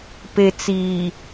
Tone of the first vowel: low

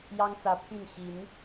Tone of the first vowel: high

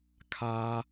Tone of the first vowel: high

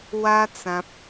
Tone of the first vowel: high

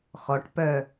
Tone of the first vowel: rising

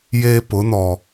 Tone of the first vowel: high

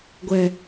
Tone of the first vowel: low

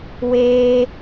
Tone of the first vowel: high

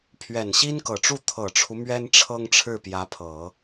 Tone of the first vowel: low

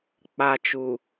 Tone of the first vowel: high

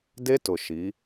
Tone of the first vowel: high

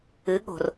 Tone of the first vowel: rising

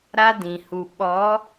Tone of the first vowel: high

